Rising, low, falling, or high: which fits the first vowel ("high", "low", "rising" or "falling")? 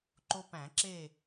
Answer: high